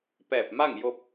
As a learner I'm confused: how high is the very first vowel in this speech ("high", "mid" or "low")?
mid